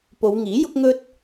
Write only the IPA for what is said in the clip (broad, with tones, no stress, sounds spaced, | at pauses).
p o˨˧ w ŋ iː˨˥ j ʊ˥ k̚ ŋ ɵ˥ t̚